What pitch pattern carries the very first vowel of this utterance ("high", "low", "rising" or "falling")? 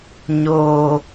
low